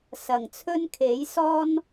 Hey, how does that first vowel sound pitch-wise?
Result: low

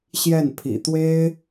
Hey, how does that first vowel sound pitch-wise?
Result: falling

